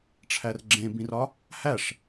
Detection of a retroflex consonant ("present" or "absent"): present